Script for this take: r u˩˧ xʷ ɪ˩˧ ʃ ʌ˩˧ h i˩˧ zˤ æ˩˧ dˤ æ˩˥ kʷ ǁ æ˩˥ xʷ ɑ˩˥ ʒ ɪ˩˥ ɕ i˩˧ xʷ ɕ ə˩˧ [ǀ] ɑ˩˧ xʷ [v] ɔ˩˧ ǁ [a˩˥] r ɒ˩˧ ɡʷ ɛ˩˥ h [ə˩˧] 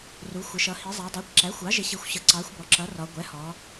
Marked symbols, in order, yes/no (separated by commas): yes, no, no, no